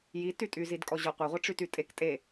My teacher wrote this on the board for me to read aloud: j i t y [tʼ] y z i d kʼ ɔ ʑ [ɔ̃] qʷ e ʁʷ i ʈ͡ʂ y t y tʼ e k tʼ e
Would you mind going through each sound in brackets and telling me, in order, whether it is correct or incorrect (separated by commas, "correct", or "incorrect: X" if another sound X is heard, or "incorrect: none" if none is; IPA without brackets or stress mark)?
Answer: correct, incorrect: ɔ